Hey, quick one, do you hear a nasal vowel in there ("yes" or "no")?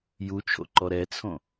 yes